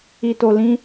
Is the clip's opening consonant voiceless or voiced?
voiceless